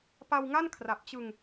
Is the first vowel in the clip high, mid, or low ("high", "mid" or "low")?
low